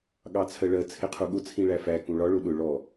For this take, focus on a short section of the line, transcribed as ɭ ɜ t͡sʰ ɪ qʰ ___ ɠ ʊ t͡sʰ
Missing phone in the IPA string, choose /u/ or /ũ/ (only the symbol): u